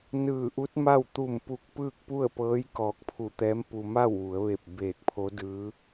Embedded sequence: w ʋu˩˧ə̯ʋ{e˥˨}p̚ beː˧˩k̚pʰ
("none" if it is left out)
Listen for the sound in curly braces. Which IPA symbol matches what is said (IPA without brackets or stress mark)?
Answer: e˧˩